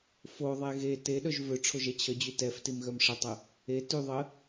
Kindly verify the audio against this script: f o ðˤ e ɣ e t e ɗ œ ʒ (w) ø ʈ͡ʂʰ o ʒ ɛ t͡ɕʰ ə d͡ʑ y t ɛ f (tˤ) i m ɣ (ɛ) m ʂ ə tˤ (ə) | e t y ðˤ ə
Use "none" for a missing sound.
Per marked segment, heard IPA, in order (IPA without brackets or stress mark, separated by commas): v, t, œ, ə